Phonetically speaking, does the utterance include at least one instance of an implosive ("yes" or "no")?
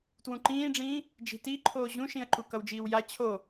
no